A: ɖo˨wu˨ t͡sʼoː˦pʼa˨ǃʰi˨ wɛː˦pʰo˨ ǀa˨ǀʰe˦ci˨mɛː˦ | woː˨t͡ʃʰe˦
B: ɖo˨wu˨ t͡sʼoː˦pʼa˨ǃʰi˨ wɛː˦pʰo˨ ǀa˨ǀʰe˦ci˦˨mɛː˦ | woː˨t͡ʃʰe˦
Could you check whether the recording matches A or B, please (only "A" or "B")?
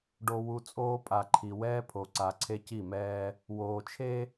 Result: B